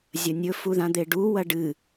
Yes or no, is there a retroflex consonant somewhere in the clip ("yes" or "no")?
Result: yes